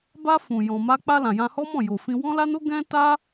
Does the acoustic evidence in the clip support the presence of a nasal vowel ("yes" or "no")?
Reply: yes